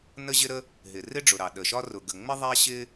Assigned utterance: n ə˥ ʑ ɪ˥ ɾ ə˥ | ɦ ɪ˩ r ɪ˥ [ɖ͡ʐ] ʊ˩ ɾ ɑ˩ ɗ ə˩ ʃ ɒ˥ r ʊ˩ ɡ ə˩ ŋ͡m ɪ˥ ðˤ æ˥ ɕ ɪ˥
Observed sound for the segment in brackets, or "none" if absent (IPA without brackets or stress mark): ɖ͡ʐ